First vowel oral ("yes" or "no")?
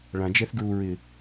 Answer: no